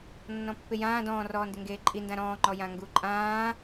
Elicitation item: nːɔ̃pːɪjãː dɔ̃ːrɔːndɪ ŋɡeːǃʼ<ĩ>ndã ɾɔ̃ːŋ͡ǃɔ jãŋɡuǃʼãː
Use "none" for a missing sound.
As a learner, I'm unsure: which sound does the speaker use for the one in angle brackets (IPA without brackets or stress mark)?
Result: i